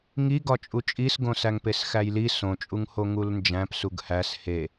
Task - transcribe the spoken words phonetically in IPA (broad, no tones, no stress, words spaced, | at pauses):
ŋiɡɒ t͡ʃʼut͡ʃʼisɡõ sæŋpesxæjli sõt͡ʃʼuŋho ŋulnd͡ʒæ̃p suɡhæs he